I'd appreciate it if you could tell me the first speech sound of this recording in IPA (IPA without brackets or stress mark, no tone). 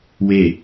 w